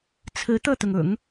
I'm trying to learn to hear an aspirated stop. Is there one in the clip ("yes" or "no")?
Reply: yes